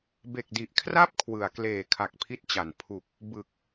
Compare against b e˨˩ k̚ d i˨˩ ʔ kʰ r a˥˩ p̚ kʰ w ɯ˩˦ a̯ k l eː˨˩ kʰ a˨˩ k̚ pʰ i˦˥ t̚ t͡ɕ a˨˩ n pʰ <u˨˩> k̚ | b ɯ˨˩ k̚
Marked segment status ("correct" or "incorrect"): correct